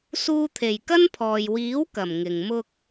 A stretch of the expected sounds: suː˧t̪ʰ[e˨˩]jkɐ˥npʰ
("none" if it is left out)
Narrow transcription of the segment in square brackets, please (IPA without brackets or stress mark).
e˨˩